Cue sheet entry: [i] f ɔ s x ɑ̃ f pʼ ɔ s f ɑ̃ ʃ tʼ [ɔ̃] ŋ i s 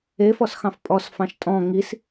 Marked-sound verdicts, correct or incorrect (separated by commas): incorrect, correct